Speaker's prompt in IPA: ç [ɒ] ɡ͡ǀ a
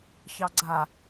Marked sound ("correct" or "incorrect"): incorrect